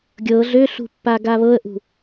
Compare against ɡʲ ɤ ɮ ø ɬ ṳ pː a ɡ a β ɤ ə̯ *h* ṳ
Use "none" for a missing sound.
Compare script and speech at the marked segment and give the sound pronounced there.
ʔ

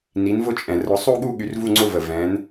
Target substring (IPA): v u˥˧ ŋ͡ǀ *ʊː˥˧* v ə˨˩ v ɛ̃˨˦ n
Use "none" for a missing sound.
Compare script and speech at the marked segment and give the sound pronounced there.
ʊ˥˧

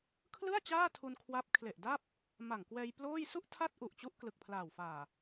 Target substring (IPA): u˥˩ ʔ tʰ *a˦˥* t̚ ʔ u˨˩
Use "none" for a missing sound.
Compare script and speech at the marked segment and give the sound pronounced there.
a˥˩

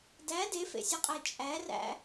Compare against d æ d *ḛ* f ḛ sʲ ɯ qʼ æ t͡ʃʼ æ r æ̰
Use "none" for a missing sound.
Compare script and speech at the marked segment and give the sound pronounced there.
e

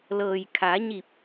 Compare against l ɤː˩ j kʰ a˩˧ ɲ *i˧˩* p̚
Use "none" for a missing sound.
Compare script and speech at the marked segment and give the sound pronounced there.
i˧˩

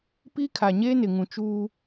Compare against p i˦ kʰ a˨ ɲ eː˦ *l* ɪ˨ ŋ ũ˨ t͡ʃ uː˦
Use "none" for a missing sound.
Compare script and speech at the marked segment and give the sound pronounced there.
n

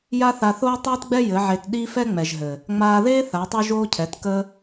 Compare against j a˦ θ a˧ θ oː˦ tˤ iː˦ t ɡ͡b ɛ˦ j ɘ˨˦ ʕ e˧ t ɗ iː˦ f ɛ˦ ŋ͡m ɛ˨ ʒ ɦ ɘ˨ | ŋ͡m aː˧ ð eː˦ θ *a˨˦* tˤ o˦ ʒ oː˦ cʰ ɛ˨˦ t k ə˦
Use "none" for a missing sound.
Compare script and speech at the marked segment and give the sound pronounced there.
a˨˦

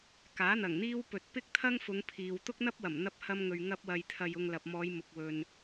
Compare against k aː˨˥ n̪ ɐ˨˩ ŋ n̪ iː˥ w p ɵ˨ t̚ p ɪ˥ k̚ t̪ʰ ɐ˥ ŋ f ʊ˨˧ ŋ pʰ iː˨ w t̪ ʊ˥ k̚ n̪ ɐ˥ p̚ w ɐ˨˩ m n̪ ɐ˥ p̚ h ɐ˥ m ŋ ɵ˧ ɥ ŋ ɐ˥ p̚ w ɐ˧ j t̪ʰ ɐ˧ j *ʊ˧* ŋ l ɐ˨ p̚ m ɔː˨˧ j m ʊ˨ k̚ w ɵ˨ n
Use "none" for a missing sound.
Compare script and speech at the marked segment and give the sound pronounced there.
ʊ˧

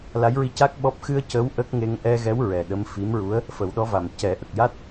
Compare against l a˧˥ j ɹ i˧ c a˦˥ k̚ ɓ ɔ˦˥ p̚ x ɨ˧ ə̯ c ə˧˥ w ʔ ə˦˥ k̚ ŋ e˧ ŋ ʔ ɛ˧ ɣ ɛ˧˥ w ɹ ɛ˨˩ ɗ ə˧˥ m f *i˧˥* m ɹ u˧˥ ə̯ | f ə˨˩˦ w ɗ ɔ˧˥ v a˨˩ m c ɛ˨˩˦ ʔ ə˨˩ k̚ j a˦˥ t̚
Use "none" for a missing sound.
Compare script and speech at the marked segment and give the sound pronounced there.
i˧˥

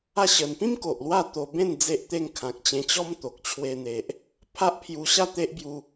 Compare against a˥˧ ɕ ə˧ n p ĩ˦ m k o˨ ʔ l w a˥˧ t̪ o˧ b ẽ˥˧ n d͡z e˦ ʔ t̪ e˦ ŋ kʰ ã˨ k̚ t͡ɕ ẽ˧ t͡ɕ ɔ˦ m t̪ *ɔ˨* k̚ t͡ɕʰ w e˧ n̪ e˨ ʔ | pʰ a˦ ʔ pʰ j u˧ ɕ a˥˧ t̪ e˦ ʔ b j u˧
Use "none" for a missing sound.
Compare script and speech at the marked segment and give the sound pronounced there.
o˨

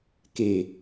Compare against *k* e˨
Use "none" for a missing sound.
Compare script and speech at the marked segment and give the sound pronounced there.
k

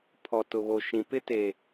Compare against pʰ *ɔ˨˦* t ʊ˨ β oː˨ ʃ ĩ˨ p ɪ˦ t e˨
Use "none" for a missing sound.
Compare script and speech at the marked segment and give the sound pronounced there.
ɔ˨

